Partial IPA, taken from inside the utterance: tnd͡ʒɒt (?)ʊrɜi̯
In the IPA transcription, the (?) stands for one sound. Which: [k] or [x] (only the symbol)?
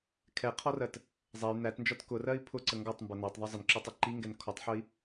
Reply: k